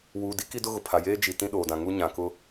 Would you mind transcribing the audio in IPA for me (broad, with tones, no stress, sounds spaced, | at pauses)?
w uː˨ d i˦ k i˦ d ʊ˦ ɣ ʊ˨ pʰ a˨ j eː˦ d͡ʒ i˨ t ĩ˦ ɗ oː˨ d ã˨ ŋ u˦ ɲ ã˨ k ʊ˦